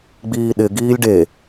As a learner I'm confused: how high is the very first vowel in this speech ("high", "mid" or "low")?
high